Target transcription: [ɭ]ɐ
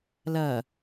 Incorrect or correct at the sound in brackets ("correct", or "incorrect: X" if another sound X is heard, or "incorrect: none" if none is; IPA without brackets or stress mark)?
incorrect: l